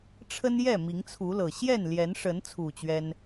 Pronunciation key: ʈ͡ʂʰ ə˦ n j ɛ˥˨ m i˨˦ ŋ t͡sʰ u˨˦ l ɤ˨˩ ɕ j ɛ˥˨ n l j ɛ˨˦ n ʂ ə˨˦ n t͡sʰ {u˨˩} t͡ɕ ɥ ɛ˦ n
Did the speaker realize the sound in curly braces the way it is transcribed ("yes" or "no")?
yes